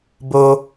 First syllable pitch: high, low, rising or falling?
high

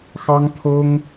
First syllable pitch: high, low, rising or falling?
high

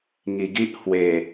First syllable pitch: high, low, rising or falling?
low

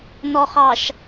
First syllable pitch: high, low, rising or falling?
low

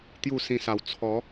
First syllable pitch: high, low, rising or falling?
falling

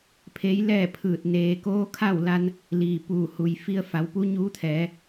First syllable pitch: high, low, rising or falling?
rising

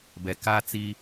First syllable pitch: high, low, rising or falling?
low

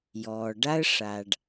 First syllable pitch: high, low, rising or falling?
low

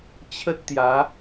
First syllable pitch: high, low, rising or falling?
high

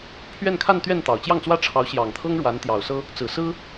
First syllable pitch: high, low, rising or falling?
falling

